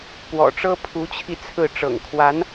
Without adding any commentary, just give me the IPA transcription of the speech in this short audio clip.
p w ɔ̰˨˩ ʈ͡ʂ ɤ˥ pʰ u˧˥ t͡ɕʰ i˧ t͡sʰ ɹ̩˥˩ ʈ͡ʂ ɤ̰˨˩ ŋ kʰ w a˧˥ n

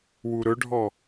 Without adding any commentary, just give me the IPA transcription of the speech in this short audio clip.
w u ɾ ɵ ɖʱ ɔ

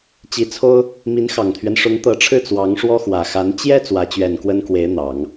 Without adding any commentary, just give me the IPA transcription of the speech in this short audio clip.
t͡ɕ i˧˥ t͡sʰ o˥ ʊ̯ | m i˧˥ n x ɑ˨˩ ŋ t̪ʰ ɥ ɛ˦ n ʂ ʊ˧˥ ŋ t̪ ɤ˧˥ ʈ͡ʂʰ ɻ̩˥˩ t͡s w ɑ˧˥ ŋ ʂ w ɔ˥ x w ä˨˩ x a˧˥ n t͡ɕ j ɛ˥ t͡s w ä˧˥ t͡ɕ ɥ ɛ˨˩ n k w ə˥ n k w e˧˥ ɪ̯ n̪ ɑ˨˩˦ ŋ

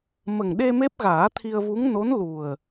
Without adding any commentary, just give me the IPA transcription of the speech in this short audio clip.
m ə˨˩ ŋ ɗ e˧ m e˦˥ p̚ ɣ aː˨˩˦ t̪ʰ i˧ ə̯ v u˧˥ ŋ n o˧˥ n l u˨˩ ə̯

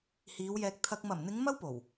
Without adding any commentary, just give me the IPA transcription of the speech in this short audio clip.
h iː˨˧ w j ɛː˧ k̚ t̪ʰ ɐ˧ k̚ m ɐ˨˩ m n̪ ɪ˨˧ ŋ m ɐ˥ w p o˨˩ w

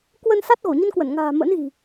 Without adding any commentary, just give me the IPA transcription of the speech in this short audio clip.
k w ə˧ n s a˦˥ t̚ ɣ o˧˩ ɲ ə˧ n k w ə˧˩ n ŋ a̤ː˨˩ m ə̰˧˥ n ɣ i̤˨˩

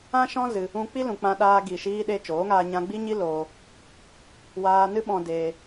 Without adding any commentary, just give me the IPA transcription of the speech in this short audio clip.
ã˦ ʃ ɔ̃˦ z ɨ˧ | ũ˧ k͡p i˦ l ũ˨ k͡p ã˧ ɗ aː˧ ɡ i˨ ʃ iː˧ ɗ e˧ t͡ʃ oː˨˦ ŋ aː˧ ɲ ã˧ ɡ͡b i˦ ɲ i˦ l oː˧ | w aː˧ n ɨ˦ ɓ ɔ̃˧ d eː˧

